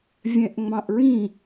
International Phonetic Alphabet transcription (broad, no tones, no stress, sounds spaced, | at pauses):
vʲ ɛ̃ ʔ ŋ͡m ɑ̃ ʔ ɹ ĩ